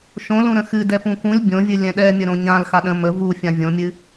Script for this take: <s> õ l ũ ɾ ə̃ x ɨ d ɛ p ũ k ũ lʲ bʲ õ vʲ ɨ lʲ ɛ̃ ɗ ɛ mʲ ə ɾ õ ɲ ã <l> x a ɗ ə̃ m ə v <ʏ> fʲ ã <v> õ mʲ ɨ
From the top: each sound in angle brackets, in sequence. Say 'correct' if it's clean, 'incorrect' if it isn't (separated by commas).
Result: incorrect, correct, incorrect, incorrect